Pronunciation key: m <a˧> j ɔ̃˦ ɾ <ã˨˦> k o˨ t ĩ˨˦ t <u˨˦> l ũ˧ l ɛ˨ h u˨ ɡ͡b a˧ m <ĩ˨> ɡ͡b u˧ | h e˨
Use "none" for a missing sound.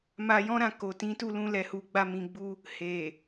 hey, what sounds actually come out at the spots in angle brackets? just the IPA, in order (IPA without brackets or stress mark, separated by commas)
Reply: a˧, ã˦˨, u˧, ĩ˨